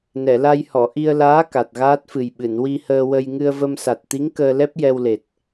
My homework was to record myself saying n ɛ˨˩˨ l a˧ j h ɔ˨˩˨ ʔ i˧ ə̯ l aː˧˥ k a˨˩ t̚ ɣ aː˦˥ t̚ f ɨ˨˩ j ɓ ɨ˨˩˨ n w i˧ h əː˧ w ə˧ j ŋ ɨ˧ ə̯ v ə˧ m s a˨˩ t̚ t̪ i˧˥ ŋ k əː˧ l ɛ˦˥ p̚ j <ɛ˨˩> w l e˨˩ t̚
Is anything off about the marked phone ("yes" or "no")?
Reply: yes